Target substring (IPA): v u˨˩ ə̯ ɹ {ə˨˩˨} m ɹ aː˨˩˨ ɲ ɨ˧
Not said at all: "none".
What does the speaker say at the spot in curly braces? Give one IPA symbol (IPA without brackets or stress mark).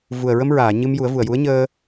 ə˧